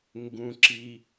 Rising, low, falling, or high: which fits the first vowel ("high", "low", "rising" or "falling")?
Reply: low